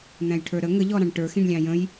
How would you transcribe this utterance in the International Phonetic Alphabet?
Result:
n̪ æ̃ j ʈʰ ə˞ ɾ ə ŋ ə ʎ ɔ ɾ ɑ̃ ɳ ʈ ə˞ x ĩ ɳ lʲ ɑ̃ j ə̃ j

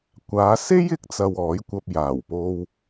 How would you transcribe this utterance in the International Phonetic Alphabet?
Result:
kʷ aː˨˧ s e˥ j ɪ˨˥ k̚ t͡s ɐ˧ w ɔː˨˥ j kʷ ɐ˧ p̚ j aː˨˩ w p o˧ w

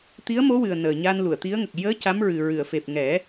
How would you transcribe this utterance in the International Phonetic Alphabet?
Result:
t̪ i˧˥ ə̯ m o˧˥ w ɨ˨˩ ə̯ n əː˨˩ ɲ a˧ n l u˨˩˨ ə̯ t̪ i˧˥ ə̯ ŋ ə˨˩ k̚ j əː˧˥ c a˧˥ m ɹ ɨ˨˩ ɹ ɨ˨˩˨ ə̯ f e˨˩ p̚ ŋ ɛ˨˩˦

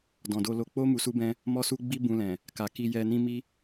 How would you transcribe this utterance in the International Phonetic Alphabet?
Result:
d ɔ̃˨ d o˧ l o˧ k͡p o˦ m u˧ s u˦ b ɛ̃˦ | m ɔ˦ s u˦ ɡ͡b i˦ b ũ˧ l ɛ̃˨ | k a˨ k i˧ j ɛ˧ n ĩ˦ m i˦

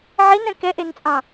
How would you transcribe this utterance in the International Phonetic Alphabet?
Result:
ʕ i n ɛ̃ k ɛ ʔ e n t͡sʼ ɑ̃

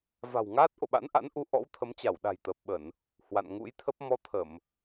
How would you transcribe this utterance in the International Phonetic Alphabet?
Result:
v a̤˨˩ w ŋ aː˦˥ t̚ ʔ o̰˧˨ ɓ a̰˧˥ n ʔ a̰˧˥ n ʔ u˧ ʔ ɔ̰˧˥ w t̪ʰ ə˨˦ m t͡ɕ a˧˩ w ɗ a̤˨˩ j t̪ əː˨˩ p̚ ɓ ə˧˩˨ n | h w a̰˧˨ n ŋ ṵ˧˥ j t̪ʰ ə˦˥ p̚ m ɔ˧ t̪ʰ ə˧˩˨ m

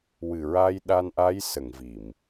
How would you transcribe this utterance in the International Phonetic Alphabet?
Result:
w ɨ˨˩ ɹ a˧ j ɗ a˧ n ʔ a˧˥ j s ə˨˩˨ ŋ v i˨˩˨ m

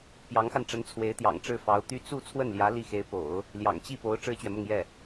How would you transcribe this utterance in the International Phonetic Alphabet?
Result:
p j ɑ˧˥ ŋ x a˧ n ʈ͡ʂ ə˧˥ n t͡sʰ w e˧˥ ɪ̯ t̪ j ɑ̰˨˩ ŋ ʈ͡ʂ ɻ̩˥˩ f ɑ˧˥ ʊ̯ t̪ y˥ t͡s u˥˧ t͡sʰ w ə˥˩ n l j ä˧˥ l i˥˩ x e˧˥ ɪ̯ p o̰˨˩˦ ʊ̯ | l j ɑ̰˨˩ ŋ t͡ɕ i˥˩ p o˧˥ ʊ̯ ʈ͡ʂ ɻ̩˥ t͡ɕ ɥ ɛ˨ m ʊ˥˧ ŋ j ɛ˥˩

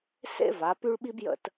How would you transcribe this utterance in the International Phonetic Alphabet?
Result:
s ḛ˥ v a˩˧ p y˥ ɭ ɓ i˥ b j ə̰˥˧ t

